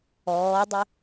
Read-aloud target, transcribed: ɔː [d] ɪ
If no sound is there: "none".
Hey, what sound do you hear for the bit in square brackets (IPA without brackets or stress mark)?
dˤ